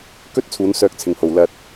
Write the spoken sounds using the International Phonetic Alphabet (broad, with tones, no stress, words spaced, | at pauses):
kɵ˥t̚ t͡sʰuː˨˧nsœː˧k̚t͡sʰɪ˨ŋho˨w lɐ˧t̚